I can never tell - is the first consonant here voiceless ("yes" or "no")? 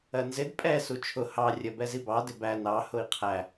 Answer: no